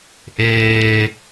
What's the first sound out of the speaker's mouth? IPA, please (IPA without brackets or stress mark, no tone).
ʔ